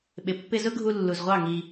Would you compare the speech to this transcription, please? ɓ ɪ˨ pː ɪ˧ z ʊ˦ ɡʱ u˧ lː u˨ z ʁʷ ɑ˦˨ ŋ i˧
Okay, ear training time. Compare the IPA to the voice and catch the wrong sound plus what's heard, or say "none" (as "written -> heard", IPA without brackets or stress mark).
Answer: none